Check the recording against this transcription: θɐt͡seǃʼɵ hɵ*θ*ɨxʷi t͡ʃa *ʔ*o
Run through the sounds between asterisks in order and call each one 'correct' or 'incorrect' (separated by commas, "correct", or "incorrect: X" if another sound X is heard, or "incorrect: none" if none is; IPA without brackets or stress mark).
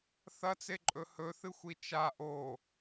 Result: correct, correct